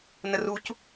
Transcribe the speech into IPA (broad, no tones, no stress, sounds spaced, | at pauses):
n ə r u c